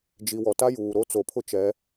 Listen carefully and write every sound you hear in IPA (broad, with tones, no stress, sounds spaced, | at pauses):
d͡ʒ i˨ w ɔ˨ t a˦ j uː˨ ɾ o˦ t͡s o˨ pʰ ʊ˦ t͡ʃ ɛ˨˦